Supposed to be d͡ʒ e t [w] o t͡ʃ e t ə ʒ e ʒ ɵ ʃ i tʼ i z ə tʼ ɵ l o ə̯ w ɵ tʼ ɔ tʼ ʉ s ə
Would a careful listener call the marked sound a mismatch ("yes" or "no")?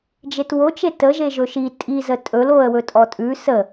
no